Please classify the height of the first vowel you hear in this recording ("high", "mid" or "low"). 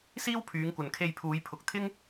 high